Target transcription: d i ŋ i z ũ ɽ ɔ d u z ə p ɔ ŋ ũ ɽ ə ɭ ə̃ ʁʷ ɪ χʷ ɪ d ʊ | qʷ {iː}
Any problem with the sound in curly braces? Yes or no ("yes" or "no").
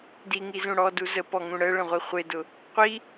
yes